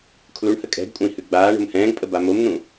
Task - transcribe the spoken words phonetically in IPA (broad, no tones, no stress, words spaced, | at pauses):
kʰluɳhə kʼɛ̤ɡkʷʼə̃i̯ hʉɡ͡baːɳo̤m hɛ̃ːɡpʼə bamomn̪ũ